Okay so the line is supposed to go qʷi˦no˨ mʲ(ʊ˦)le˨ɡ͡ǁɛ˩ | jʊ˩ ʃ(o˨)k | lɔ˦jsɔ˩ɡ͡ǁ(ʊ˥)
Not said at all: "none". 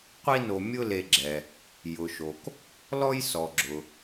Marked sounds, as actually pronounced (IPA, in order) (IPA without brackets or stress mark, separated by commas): ʊ˦, o˩, ʊ˩